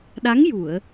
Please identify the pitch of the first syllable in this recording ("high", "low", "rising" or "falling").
rising